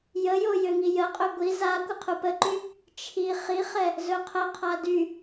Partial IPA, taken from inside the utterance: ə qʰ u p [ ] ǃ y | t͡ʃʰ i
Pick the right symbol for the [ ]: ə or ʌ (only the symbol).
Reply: ə